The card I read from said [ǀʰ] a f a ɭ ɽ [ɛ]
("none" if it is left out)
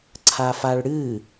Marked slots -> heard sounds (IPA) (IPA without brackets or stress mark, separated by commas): ǀʰ, ɨ